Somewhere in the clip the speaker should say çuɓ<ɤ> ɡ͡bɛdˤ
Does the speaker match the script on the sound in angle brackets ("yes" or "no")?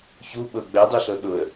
yes